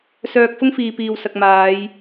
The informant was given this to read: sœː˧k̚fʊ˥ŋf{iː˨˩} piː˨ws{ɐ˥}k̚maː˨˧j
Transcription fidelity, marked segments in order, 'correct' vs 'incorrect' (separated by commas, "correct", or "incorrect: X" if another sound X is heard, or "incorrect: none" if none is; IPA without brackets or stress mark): incorrect: iː˨, incorrect: ɐ˨